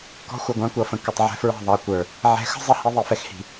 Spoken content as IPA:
kɔ̤˦ xʷʌ˨ɡʷɑ̃˦kʷʌ˨fə̃˨ kə˨tˤ ʕɛ̤˦fɹɑ̤˦˨ðˤɑ˨kʷə˞˨ | ʕɛ̤˨˦xə̤˦ zˤʌ˦ hi˦ðˤi˨fɛ˦xhi̤˨

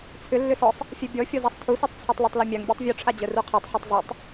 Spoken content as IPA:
t͡sʰʏ lːʏsɔsˤ | fʲɛbʲɔ fʲɔzasˤtʰusitˤ t͡sʰɛtˤlœtˤlœmʲaŋ bʲɔtˤvʲuʈ͡ʂʰa d͡ʑœruqʰatˤ ħutˤzˤitˤ

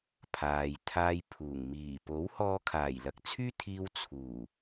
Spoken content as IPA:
pʰaː˨jt̪ʰaː˧jpʰuː˨˩ŋ miː˨˩po˨˥whɔː˧ kʰaː˨˩jlɐ˨˥k̚t͡sʰyː˥t̪ʰiː˧w t͡sʰuː˨˩

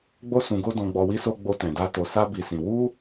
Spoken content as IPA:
ɡ͡bo˧sũ˨ɡo˧ dɔ̃˨ɡ͡bɔ˨wi˧so˧ ɡ͡bo˧tɛ̃˨da˧ to˧sa˦bi˧sĩ˧ wu˦

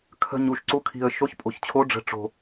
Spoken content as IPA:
kʰə̤˨˩ɲ u˨˩ʃǀu˨˦kʰi̤˨˩ə̯ ʃo˨˦çpʼo̤˨˩çt͡ɕʰo˨˦ ɖ͡ʐə̤˨˦ʈ͡ʂo̤˨˩

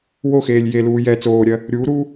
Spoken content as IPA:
woxeːlʲ jeluː jɛ t͡soːɾʲɜ | ɾʲuːɾuː

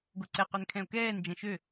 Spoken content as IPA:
ɡoǀɛqøn kʰɛ̃o̯kɛːnd͡ʒɛ̃ ʃø

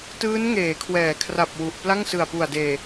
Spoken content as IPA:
tɯː˦˥nŋeː˩˦kʰwɛː˩˦kʰra˨˩p̚ wu˨˩ʔ pla˥˩ŋsɯ˨˩a̯pu˨˩a̯deː˨˩

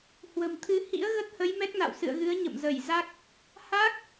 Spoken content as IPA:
hwə̤˨˩mt̪ʰɨ˧ hḭ˧˥ə̯ɣə˦˥t̚hə˨˦j mɛ˦˥k̚na̰˧˨wsɨ̰˧˨ə̯ɣɨ˨˦ə̯ ɲə̰˧˨mzə˧˩j za˦˥k̚ | ha˦˥k̚

